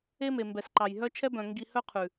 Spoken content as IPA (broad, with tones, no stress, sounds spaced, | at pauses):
e˦ m e˨ m b ɛ˨ s ǃ ɑ˨ j ɦ œ˦ t͡ʃʰ ɛ˦ b œ̃˨ ŋ ɡ i˨ h œ˦˨ qʰ ʉ˨